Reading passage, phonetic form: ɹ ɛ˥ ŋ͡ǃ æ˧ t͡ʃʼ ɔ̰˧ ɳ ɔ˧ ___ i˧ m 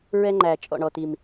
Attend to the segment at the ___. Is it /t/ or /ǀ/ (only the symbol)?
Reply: t